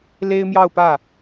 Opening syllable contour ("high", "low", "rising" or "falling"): high